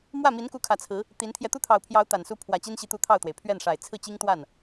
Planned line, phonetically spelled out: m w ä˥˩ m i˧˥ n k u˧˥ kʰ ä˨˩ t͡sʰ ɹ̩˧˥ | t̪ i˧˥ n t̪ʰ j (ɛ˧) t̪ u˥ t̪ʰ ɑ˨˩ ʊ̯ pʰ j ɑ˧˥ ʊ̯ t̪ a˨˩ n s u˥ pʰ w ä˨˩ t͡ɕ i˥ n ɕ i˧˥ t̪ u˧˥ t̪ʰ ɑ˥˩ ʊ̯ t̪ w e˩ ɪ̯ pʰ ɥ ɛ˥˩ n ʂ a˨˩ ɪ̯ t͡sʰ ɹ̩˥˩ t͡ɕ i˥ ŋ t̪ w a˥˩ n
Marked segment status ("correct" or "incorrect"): correct